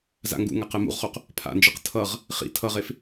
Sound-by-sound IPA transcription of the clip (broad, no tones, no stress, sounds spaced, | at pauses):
z a̰ ŋ ɡ ṵ ŋ a q ɛ m ṵ ʁ χ o q | pʰ a̰ n d͡ʒ ɯ q tʰ ʌ ʁ | χ ḭ tʰ ʌ ʁ e f